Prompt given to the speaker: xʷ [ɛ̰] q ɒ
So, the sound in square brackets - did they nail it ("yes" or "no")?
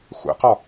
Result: yes